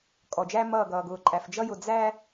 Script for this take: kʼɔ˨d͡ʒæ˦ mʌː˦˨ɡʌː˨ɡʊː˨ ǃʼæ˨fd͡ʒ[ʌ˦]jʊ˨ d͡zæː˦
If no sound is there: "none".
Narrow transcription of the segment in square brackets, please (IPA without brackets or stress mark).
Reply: ʌ˦